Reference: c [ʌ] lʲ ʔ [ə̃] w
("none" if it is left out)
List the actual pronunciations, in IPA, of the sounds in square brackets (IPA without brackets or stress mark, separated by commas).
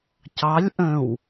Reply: ɑ, ə̃